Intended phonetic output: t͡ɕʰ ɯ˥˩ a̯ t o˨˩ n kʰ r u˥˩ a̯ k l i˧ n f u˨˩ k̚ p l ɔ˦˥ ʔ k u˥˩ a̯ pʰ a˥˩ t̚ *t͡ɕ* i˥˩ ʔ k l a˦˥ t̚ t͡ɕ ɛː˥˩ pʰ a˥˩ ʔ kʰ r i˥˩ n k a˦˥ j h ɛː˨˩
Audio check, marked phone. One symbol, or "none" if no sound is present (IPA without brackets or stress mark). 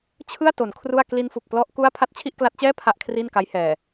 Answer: t͡ɕʰ